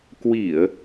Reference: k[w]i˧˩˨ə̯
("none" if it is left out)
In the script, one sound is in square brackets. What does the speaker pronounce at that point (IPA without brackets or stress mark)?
w